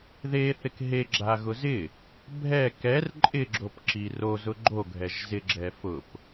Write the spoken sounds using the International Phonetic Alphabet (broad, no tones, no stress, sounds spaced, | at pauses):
ð e θ ɪ k ɦ e ɡ͡ǁ a ɣ ʊ z ɪ | bʱ ɛ k ɛ r ǃʼ ɪ ɡ͡ǁ o p ǁ i r o z ʊ ɡ͡ǃ o ɡʱ ɛ ʒ z ɪ ɡ͡ǁ ɛ f ʊ p